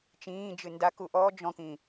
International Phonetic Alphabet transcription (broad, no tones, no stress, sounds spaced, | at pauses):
t͡ʃ ĩː d͡ʒ ɨ n d a k u ʔ ɔ d͡ʒ ɔ̃ k ĩ